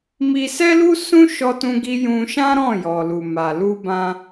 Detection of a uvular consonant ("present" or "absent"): absent